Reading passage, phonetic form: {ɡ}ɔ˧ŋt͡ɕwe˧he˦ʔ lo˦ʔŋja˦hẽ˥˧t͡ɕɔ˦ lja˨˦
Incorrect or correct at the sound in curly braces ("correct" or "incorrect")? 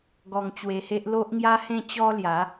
correct